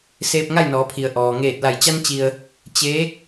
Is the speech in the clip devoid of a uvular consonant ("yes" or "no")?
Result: yes